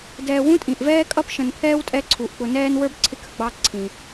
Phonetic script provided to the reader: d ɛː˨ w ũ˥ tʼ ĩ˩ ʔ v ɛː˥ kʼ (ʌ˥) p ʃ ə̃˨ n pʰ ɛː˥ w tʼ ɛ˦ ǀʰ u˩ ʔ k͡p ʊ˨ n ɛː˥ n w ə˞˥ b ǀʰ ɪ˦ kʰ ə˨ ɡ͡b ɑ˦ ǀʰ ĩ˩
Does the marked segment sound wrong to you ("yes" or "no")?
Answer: no